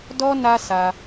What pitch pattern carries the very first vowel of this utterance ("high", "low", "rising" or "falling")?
high